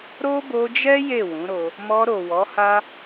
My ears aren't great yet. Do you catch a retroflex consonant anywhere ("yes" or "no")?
no